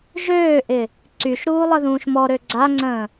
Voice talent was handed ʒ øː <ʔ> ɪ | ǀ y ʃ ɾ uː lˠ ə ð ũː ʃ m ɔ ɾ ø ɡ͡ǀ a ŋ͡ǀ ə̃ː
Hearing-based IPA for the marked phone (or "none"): ʔ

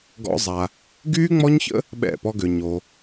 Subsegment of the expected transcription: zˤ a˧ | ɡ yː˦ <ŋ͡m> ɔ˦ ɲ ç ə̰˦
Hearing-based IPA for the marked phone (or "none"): ŋ͡m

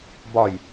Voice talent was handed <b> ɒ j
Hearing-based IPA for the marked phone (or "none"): b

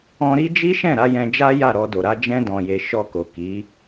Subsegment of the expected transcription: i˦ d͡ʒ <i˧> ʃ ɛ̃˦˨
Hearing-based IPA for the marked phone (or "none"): i˦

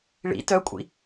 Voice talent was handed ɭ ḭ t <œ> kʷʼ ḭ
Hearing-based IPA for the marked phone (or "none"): œ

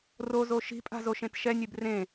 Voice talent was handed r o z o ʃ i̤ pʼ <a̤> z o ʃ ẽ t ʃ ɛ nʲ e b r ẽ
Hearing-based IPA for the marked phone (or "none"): a̤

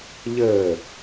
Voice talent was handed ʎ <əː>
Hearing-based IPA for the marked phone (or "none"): əː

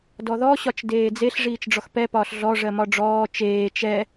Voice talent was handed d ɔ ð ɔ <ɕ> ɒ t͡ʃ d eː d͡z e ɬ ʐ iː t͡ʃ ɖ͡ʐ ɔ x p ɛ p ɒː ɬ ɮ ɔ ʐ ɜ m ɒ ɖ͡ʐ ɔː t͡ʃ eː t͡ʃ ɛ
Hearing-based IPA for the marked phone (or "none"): ɕ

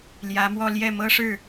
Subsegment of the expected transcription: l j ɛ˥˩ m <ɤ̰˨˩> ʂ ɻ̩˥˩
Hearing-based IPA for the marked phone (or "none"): ɤ˥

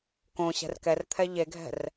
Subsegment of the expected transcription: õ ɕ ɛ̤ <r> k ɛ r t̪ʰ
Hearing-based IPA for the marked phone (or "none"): r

